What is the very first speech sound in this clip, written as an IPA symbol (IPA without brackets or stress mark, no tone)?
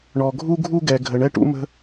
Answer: ɳ